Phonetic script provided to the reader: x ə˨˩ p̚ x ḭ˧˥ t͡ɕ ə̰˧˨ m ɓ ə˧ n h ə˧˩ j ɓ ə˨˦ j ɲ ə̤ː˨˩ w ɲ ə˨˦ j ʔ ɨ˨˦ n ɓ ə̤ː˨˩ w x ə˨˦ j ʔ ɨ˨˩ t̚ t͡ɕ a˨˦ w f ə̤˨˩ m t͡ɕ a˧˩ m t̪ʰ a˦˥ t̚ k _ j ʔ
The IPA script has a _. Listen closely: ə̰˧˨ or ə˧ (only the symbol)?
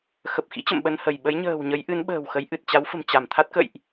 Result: ə̰˧˨